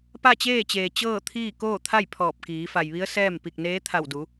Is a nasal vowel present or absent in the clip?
absent